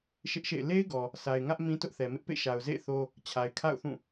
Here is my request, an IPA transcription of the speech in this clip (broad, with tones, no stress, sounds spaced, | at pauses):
ʃ ɪ˦ ʔ ʃ ḛ˦˨ ɪ̯ l e˦ ɪ̯ ɡ ɔ˨ | sʰ a˨ ɪ̯ ŋ ä˦ ʔ m ĩ˦ t ʊ˦ ʔ θ ɛ˨ m ɪ˦ ʔ p ḛ˦˨ ʃ a˨ ʊ̯ z ḛ˦˨ ɪ̯ θ o˦ | t͡ɕʰ a˨ ɪ̯ kʰ a̰˦˨ ʊ̯ θ ũ˦˨